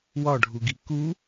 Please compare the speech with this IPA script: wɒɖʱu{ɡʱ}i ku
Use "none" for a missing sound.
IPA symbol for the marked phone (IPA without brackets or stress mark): ɡ